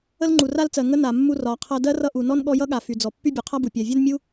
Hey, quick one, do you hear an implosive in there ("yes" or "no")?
yes